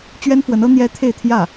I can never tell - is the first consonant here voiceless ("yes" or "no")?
yes